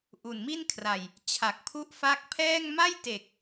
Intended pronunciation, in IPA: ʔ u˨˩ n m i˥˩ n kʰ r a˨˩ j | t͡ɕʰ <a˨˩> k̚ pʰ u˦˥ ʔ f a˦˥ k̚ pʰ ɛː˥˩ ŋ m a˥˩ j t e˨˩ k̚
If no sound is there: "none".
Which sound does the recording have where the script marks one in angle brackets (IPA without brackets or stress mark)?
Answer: a˨˩